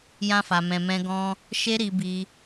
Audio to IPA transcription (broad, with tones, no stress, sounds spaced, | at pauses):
j ã˦ f a˧ m ɛ̃˧ m ɛ̃˦ ɡ ɔ̃˦ | ʃ e˦ ɾ i˧ b i˧